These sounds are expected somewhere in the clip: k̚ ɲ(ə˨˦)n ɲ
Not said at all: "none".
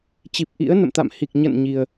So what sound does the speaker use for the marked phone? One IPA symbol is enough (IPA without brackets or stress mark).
ə̰˧˨